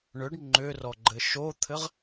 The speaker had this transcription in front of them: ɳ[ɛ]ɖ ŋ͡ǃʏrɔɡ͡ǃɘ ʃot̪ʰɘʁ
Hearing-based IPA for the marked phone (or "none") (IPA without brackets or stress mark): ʏ